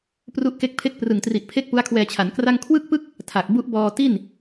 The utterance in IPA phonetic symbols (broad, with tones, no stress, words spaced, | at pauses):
pru˦˥ʔke˦˥k̚ pʰe˦˥k̚prɯ˨˩ŋtri˨˩ʔ pʰe˥˩k̚pu˦˥a̯kʰwɛː˧t͡ɕʰa˩˦n kra˥˩ŋ kʰwɯ˥˩k̚pɯ˥˩k̚ | tʰa˨˩k̚ bu˦˥ʔbɔː˧ti˥˩n